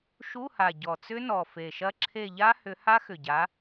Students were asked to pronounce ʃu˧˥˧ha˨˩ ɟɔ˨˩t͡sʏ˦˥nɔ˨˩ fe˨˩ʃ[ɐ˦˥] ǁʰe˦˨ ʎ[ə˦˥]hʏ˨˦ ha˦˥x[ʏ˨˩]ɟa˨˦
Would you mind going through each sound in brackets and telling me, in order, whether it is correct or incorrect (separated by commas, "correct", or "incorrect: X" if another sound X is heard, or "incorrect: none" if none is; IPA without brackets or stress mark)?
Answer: correct, incorrect: a˦˥, correct